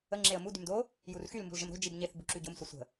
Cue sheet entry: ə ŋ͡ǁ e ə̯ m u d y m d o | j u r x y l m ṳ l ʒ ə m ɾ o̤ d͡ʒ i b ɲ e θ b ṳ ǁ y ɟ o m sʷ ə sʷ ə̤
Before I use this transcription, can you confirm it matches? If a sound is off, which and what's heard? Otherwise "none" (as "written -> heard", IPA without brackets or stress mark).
none